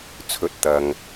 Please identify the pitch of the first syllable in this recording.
rising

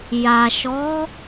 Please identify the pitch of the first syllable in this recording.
low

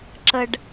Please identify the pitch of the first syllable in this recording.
low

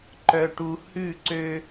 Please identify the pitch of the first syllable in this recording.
low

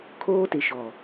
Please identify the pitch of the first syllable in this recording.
high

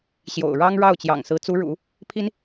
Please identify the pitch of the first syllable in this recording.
low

